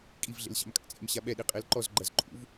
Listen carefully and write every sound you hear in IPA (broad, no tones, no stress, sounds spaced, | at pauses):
kʼ i v ɮ ḛ l ɕ a̰ m kʼ a̰ t͡sʼ ḛ m ɕ a ɓ ɛ ɗ i qʼ e l ǃ ɔ z ɡ͡ǃ ɐ z ǃʼ ṵ v